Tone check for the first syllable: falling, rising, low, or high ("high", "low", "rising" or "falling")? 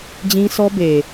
high